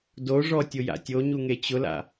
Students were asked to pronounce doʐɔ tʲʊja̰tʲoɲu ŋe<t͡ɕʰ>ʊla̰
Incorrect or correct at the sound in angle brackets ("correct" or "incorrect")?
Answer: incorrect